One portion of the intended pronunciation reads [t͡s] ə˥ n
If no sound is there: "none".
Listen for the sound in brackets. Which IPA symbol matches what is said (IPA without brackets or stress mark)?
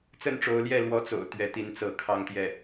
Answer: t͡s